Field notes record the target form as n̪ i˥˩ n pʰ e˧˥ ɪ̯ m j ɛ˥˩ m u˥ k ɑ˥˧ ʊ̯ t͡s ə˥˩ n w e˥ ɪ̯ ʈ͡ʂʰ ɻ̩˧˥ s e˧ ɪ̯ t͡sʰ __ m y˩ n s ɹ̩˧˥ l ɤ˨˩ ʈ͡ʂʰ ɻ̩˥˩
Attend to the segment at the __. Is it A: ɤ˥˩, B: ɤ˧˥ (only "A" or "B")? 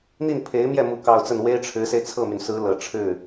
A